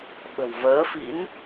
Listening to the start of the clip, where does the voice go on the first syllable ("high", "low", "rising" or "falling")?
low